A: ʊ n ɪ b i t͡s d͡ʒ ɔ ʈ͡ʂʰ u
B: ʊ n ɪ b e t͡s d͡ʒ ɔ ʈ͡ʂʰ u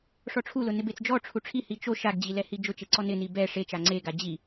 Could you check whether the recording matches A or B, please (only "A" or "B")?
B